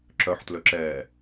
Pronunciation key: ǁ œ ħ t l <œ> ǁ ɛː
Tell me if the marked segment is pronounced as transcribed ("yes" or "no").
no